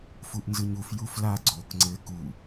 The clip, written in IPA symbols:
f u ʔ n z ɯ ɲ u f j u f l a ɡ͡ǀ o k ŋ͡ǀ ɘ k u

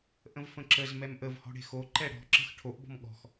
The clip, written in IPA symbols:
ʔ ə̃ v f ə̃ ǁ ə z m ɛ m ʔ ə v h ɔ̤ ɽ e̤ x o ǃ ɛ ɽ ɔ̤ ǁ ə̤ x ʈʰ o ʔ b ɔ̤ m ɠ ɔ̤ x

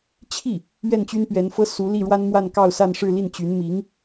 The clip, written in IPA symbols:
t͡ɕʰ i˥˩ | ɥ ɛ˥˩ n t͡ɕ y˥ n p ɥ ɛ˧˥ n f ɤ˥ s u˧˥ l i˥˩ ɻ w a˥ n m w a˥˧ n k ɑ˥˧ ʊ̯ s a˥˧ n ʂ ɻ̩˥˧ l i˥˩ n t͡ɕ y˧˥ n m i˧˥ ŋ

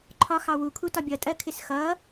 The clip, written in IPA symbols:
ǃʰ ɒ x ɑ w u kʰ u t ɒ bʲ ʌ tʼ ɜ kʰ ɪ s x ʌ

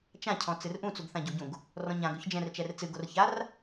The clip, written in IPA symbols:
t͡ʃ ã cʰ ɔ̃ t͡s ɨ r ʔ ũ t͡s u ɡ θ ã ɟ u ɟ ũ ɡ | r ɔ̃ ɲ ã ɡ ɵ ç d͡ʒ ɛ̃ r t͡ʃ ɛ r t͡s ɨ ɡ o r ç a r

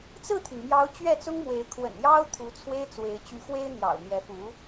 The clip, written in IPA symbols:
t͡s ɹ̩˥˩ t̪ʰ y˩ n m j ɑ˧˥ ʊ̯ t͡ɕ ɥ ɛ˥˩ t͡s ʊ˥ ŋ m w e˧˥ ɪ̯ kʰ w ə̰˨˩ n j ɑ˥ ʊ̯ t̪ʰ u˧˥ t͡sʰ w e˥ ɪ̯ t͡s w e˧˥ ɪ̯ t͡ɕ y˧˥ x w e˥ ɪ̯ n̪ j ɑ̰˨˩ ʊ̯ n̪ j ɛ˧˥ f u˧˥

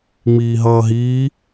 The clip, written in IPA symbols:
ŋ͡m iː ɦ ʌː ɦ iː

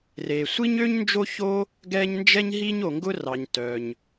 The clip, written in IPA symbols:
r e˩ sʷ i˥ ɲ ø˥ ɲ n d͡ʒ o˥ ç o˥ | ɡ ɛ˥ ɲ n d͡ʒ ɛ˥ ɲ ɦ i˥ ɲ o˩ ŋ ɡ ʊ˥ r ɑ˩ ɲ t œ˩ ɲ

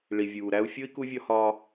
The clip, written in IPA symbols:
ɭ i˨ vʲ uː˨ ɾ æ˦ u̯ fʲ o˥ i̯ k u˦ vʲ ɒ˦ h ɒː˦

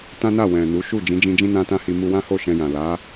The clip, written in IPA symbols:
t ã˦ n a˦˨ w ɛ̃˨ n u˨˦ ʃ u˦˨ d͡ʒ ĩ˨˦ d͡ʒ ĩ˧ d͡ʒ ĩ˦ n ã˦ t ã˦ h i˧ m u˧ w ã˦ h o˦˨ ʃ ɛ̃˧ j ã˨ l a˨˦

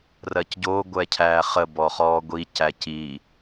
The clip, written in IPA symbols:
r ɜ c ɟ o ɡʷ ɛ cʰ æː χ ə b ɔ χ ɔː ɡʷ i c æ c i

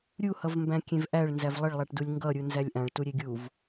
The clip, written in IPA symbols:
ɾʲ u h ʌ v m b æ̃ kʲ ẽ v ʔ æ ɭ n z æ v lˠ ə ɭ lˠ a ʈ d u lʲ ŋ ɡ ʌ ɾʲ u n z æ lʲ ʔ ã ɭ t u ɾʲ e ɡʲ u v

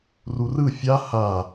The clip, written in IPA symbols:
r u r ɯ fʲ a h a

